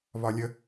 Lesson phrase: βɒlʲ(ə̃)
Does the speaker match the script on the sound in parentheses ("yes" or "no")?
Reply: no